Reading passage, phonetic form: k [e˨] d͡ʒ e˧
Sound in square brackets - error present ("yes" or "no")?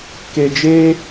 no